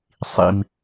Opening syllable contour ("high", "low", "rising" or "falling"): high